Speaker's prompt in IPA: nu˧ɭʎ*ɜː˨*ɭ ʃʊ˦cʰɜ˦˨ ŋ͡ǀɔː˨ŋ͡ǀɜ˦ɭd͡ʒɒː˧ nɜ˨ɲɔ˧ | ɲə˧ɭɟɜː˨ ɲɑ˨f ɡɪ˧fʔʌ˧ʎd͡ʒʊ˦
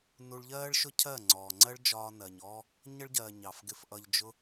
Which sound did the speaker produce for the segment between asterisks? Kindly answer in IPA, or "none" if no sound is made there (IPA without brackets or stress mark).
ɜː˦